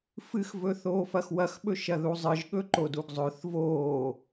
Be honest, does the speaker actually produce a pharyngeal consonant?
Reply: no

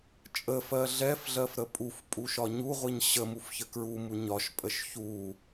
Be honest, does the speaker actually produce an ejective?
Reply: yes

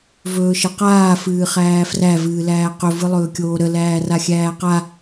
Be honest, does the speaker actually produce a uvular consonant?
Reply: yes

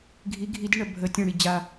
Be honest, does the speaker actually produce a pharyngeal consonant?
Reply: no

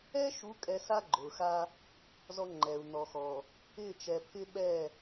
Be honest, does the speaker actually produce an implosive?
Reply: yes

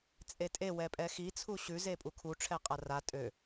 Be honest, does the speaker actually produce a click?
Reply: no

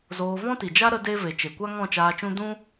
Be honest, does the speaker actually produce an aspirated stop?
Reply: no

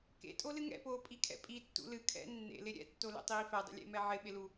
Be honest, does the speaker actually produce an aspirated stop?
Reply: yes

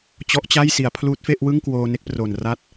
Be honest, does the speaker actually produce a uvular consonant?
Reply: no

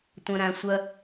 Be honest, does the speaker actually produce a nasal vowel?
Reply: yes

